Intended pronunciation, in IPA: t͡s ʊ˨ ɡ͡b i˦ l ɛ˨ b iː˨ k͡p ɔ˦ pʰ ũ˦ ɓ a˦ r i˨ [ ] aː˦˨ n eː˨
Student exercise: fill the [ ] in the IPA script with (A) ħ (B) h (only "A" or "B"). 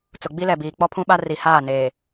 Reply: B